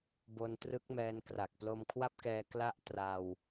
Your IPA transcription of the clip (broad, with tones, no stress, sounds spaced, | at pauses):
b o˧ n t r ɯ˦˥ k̚ m ɛː˧ n k r a˨˩ k̚ p l o˧ m kʰ w a˥˩ p̚ k ɛː˧ k l a˥˩ ʔ t r a˧ w